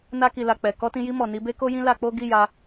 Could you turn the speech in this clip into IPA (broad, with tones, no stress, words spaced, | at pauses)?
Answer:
na˧ki˨la˨ k͡pɛ˨ kɔ˧tĩ˧ji˧mɔ˨ ni˨˦be˦ko˦jĩ˦ la˧k͡po˦ ɡi˦˨ja˧